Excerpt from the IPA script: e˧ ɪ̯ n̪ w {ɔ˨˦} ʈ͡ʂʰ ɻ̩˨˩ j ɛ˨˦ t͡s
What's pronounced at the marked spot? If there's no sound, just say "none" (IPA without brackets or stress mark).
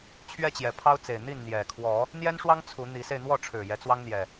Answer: ɔ˥˨